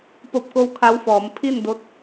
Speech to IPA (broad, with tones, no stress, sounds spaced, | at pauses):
p o˧ p̚ k o˧˥ w kʰ a˧˥ w f ɔː˩˧ m pʰ i˥˨ n d o˧ t̚